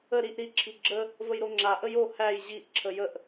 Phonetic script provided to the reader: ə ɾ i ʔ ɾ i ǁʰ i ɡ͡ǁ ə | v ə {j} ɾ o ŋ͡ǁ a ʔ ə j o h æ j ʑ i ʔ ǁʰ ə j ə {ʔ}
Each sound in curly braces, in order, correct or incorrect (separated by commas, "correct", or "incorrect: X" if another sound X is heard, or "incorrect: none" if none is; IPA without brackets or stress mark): correct, correct